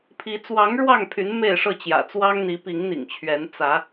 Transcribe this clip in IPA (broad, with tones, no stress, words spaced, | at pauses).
pʰi˨˦ t͡swɑ˨˦ŋ ɻwɑ˥˨ŋpʰy˨˦n me˥˨ɪ̯ ʂɤ˥˨t͡ɕjä̰˨˩t͡swɑ˦ŋ n̪i˨˦pi˨˦ŋn̪ḭ˨˩ŋt͡ɕʰɥɛ˨˦n t͡sä˨˦